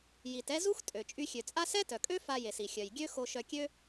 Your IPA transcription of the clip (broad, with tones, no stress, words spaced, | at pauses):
ji˩t ɛ˧ zu˥xtʼø˩ t͡ʃʼy˧xʲø˩t͡sʼa˥ sɛ˥tœ˩kʼø˥ fa˧je˩si˩xʲœ˩j ɡʲø˥ xo˧ʃœ˧ kʲø˥